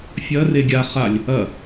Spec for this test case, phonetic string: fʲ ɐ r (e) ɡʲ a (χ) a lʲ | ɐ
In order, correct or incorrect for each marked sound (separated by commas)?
correct, correct